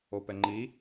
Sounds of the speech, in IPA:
o p ɛ ŋ͡ǃ i

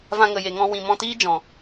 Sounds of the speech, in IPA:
v ã˧ ŋ ə˨ j e˨ ŋ ɔ̃˧ w ĩ˨ m ɔ̃˧ t iː˦ d͡ʒ ɔ̃˨

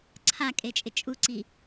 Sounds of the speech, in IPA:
ǀʰ a kʼ e t͡ʃʼ ɪ t͡ʃʼ u ǀ i

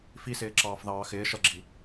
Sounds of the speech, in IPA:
f i s ɪː ǁ ɑː f ð ɑː x ɪː ʃ ʌ ɡ͡ǁ i

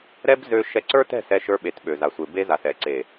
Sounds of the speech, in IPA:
ɾ ɛ˦ b z ø˧ ʃ ɛ˧ ǀ ə˞˦ t ɛ̤˦˨ s ɛ˧ ʃ ə˞˧ ɓ e˨ t ɓ ø˨ z a˨ sʷ e˨ b e˧ z a˨ s ɛ˨ ǀ e˨

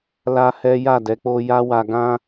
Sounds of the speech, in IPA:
l a˦ h ɛ˦ j a˦˨ d ɛ˨˦ k͡p o˦ j a˦ w a˧ ɡ ã˦

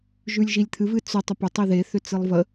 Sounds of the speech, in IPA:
ʒ ʉ lʲ ʒ i lʲ t̪ʰ ɨ v ɨ t͡s ʏ tˤ ʏ p ʏ tˤ i ð e θ ʏ t͡s ɨ lˠ v ə

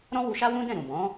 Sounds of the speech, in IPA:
ɾ ɔ̃˦ w u˧ ʃ a˦ w ũ˦ d ɛ̃˦˨ ɾ ũ˨ b ɔ̃˨˦

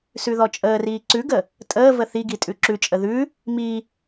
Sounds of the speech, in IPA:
s ʉ ð ɔ t͡ʃʼ əː r iː ǀ ʉ ɡ ə | tʼ əː v ə θ i ɡ i tʼ ʉ ǁ ʉ t͡ʃʼ ə ð ʉ | m i

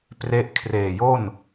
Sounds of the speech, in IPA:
p r e˦˥ ʔ kʰ r eː˨˩ j o˥˩ n

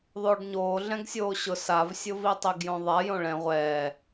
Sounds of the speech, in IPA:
ðˤ oː ɖ ɲ oː ɮ ɛ̃ ɡ sʲ oː ɕ ʊ s a v sʲ ʊ v i tˤ i ɡ j õ ðˤ a j õ ɭ ɛ̃ ʁʷ ɛː

